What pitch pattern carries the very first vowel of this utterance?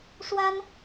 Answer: high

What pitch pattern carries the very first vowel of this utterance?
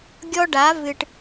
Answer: high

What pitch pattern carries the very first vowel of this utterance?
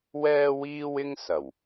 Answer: high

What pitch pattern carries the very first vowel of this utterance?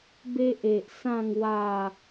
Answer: high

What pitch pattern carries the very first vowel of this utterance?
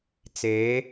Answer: rising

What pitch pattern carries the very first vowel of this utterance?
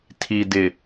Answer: low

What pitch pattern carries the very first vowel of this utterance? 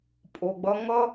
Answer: low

